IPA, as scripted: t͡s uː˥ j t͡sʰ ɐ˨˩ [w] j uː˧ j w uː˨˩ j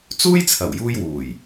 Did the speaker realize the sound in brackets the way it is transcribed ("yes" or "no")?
yes